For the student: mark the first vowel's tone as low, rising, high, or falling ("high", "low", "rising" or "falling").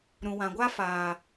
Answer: low